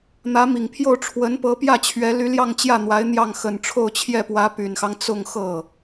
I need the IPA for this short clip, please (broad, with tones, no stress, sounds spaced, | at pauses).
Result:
n̪ ä˧˥ m i˨˩ ŋ pʰ j o˥˩ ʊ̯ ʈ͡ʂʰ w ə˧˥ n p ɤ˧˥ p j ä˥˩ t͡ɕʰ ɥ ɛ˧˥ l y˧˥ l j ɑ˥˧ ŋ t͡ɕ j ä˥˩ n̪ w a˧˥ ɪ̯ n̪ j ɑ˥˩ ŋ x ə˨˩ n ʈ͡ʂʰ o˥˧ ʊ̯ t͡ɕʰ j ɛ˥˩ p w ä˧˥ p y˨˩ n x ɑ˦ ŋ t͡s ʊ˥˧ ŋ x ɤ˥˩